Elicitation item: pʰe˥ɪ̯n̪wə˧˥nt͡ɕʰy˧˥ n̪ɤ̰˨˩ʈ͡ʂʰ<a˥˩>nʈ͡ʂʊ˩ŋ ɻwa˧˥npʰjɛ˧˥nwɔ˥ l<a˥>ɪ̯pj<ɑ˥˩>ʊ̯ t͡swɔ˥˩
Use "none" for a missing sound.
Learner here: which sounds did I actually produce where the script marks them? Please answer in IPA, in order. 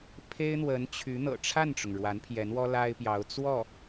a˥˩, a˥, ɑ˧˥

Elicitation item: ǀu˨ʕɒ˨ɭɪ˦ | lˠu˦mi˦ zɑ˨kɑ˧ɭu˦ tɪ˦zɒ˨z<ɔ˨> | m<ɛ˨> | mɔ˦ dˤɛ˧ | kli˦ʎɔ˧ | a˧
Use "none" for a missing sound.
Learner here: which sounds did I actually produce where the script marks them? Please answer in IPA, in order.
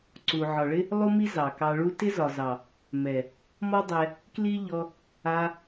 ɑ˨, ɛ˨

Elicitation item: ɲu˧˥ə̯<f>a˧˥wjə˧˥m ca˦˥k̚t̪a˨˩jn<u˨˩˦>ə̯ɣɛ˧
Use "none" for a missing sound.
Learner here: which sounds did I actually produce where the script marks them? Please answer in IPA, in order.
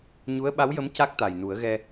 ɓ, u˨˩˦

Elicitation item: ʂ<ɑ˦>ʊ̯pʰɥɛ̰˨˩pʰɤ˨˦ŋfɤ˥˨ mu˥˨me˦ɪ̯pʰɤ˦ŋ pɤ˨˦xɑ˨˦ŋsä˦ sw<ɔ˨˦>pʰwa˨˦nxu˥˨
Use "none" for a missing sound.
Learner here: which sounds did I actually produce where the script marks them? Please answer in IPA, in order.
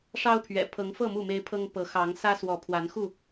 ɑ˦, ɔ˨˦

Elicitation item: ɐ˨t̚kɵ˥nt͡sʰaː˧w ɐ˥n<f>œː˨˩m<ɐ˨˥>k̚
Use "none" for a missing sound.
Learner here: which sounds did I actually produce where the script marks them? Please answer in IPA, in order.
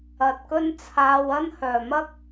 h, ɐ˥

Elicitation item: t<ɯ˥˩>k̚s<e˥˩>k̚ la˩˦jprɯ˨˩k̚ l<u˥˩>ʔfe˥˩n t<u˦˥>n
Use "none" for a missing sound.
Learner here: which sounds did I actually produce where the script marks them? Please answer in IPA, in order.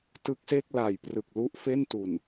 ɯ˦˥, e˥˩, u˥˩, u˨˩

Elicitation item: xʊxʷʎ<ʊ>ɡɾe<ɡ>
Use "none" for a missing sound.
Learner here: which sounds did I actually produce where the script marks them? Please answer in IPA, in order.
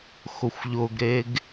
ʊ, ɡ

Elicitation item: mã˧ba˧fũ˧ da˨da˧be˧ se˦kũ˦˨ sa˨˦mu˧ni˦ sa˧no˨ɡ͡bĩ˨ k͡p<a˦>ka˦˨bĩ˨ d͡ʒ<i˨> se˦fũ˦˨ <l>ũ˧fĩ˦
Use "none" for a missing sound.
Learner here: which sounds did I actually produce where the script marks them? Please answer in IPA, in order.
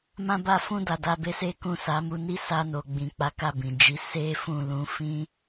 a˨˦, i˨˦, l

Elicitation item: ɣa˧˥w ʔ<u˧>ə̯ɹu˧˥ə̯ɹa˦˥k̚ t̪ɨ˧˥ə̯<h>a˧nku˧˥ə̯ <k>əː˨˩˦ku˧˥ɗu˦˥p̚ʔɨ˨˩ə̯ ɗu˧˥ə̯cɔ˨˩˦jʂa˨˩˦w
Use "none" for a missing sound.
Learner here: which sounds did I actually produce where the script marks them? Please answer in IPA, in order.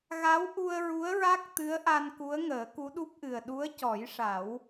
u˧, ʔ, ŋ

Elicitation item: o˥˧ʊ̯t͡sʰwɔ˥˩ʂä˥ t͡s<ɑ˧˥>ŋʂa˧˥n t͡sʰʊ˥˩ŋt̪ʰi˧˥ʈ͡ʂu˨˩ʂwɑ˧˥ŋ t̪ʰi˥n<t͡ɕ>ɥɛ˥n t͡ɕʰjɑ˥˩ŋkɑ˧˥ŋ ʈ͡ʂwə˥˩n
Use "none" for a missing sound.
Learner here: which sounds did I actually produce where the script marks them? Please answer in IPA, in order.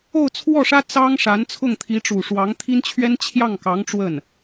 ɑ˥, t͡ɕʰ

